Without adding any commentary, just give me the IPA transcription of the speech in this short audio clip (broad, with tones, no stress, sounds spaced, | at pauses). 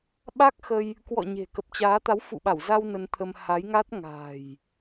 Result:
ɓ a˦˥ k̚ x ə˧ j | k w ɔ̰˧˨ ɲ e̤˨˩ k ə˨˩ p̚ t͡ɕ aː˨˦ t̪ a˨˦ w f ṵ˧˨ ɓ a˧˩ w z a˧ w n ə˧ n t̪ʰ ə˧ m h a˨˦ j ŋ a˦˥ t̚ ŋ a̤˨˩ j